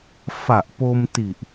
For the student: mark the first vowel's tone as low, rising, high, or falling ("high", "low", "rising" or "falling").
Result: low